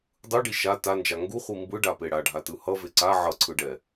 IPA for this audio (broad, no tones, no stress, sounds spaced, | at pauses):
dˤ ɯ ɖ i ʃ a t a n d͡ʒ a ŋ ɡ u χʷ i m b ɯ ɖ a p e ɽ a ɖʱ a t ɯ h ʌ v e ǀ a ʕ ʌ ǀʰ ɯ ɖ ɛ